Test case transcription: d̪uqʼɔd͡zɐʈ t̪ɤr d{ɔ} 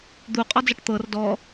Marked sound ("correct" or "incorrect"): correct